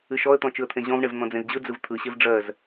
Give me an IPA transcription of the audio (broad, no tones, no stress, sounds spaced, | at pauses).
ɨ ʃ ɔ ə̯ t̪ ɔ̃ t͡ʃ ɯ ə̯ t̪ʰ ẽ ʑ ɔ̃ v ɳ e v n̪ ɔ̃ d͡z ẽ z d͡ʑ ɯ d͡z ɯ v t̪ʰ ɯ ɕ e v ɖ͡ʐ ɜ z